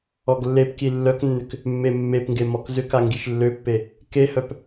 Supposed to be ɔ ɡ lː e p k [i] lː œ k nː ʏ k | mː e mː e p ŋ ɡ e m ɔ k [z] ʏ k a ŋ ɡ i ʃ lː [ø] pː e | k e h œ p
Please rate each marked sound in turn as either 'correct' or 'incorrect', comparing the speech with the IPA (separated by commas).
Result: correct, correct, correct